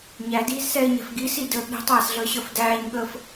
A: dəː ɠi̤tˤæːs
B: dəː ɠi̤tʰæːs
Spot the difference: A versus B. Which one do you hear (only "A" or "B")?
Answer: A